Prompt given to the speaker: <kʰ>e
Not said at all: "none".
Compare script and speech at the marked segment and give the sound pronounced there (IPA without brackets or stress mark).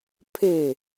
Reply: pʰ